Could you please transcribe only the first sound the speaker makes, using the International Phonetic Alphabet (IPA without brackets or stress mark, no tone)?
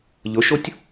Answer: ʎ